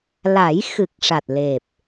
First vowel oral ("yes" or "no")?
yes